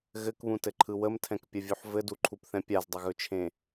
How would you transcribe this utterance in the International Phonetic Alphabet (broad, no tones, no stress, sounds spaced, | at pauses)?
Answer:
ɣ ɘ k β ũ t ɘ ǃʰ ɯ w ə m tʰ ɛ̃ k pʲ ə vʲ u ħ v ɘ d u ǃʰ u p θ ɛ̃ pʲ a z dˤ ə ɣ ɵ t͡ʃʰ ẽ